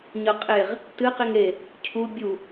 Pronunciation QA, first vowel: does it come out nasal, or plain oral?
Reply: oral